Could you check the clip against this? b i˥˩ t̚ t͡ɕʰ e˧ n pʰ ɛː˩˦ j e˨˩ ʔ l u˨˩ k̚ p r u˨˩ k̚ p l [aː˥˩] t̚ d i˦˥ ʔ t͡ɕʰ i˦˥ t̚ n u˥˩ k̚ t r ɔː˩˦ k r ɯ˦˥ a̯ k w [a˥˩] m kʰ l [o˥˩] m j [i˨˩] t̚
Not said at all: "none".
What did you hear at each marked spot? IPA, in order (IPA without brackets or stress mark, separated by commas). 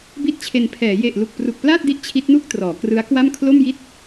aː˥˩, a˥˩, o˥˩, i˥˩